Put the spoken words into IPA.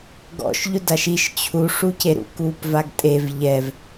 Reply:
ɡ ɔ̰ ʃ ʎ ʊ d a ʃ i ʃ t͡ɕʰ u ʂ u c e ɾ ṵ k uː p v a ɡ tʼ e v ʎ ɛ v

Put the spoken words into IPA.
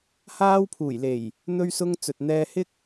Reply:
h aː˧ w pʰ uː˨˩ j l e˨˩ j | n̪ ɵ˧ ɥ s ʊ˧ ŋ t͡s ɵ˨ t̚ n̪ ɛː˧ h ɪ˥ k̚

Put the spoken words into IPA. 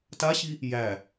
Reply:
t a ɕ i | j æ

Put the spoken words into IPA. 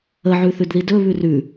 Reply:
ə ʕ ʉ θ ʉ d ð i d ɵ β ʉ r ʉ

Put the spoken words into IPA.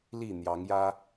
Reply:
l i˥˨ n̪ j ɑ˨˦ ŋ j ä˦

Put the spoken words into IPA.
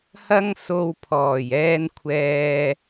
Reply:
h ɐ˧ ŋ s o˨ w pʰ ɔː˨˩ j ɛː˧ n kʷʰ ɛː˧

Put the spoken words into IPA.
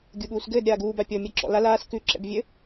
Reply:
ɡʲ u ɠ uː s ɡ ɘː d ɾʲ aː ɡ uː b a pʲ ɔ mʲ a ǁ ɔ̰ l a l aː s k ʉ ǁ ɛ̰ b vʲ ɘ

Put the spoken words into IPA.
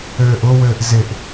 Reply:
øː ʔ ʊ w ɘː ʔ z ɪ ʔ

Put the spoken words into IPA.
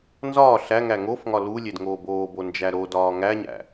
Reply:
n z ɒː ɬ æ ŋ æ ŋ o f ŋ ɒ l u lʲ e d ŋ oː b oː b o n d͡ʒ æ ɾ o d ɒː ŋ æ ɲ æ̰

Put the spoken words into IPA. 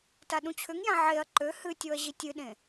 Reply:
t a ɗ ũ t͡ɕʰ ʏ ŋ j ã ʕ e ɐ̯ ǃ ø h ɨ tʲ o ɐ̯ ʑ i tʲ ɨ ɗ ẽ

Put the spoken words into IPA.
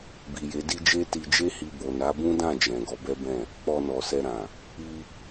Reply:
b i˨ j e˨˦ d i˦ d͡ʒ e˦ t i˧ d͡ʒ e˦ h i˧ b o˨ n a˨˦ b ũ˦ d ã˦˨ d͡ʒ ɛ̃˨ ɡ ɔ˨˦ b ɛ˦ b ɛ̃˦˨ | k͡p ɔ˧ n ɔ˨ s ɛ˧ ɾ ã˨ | i˧

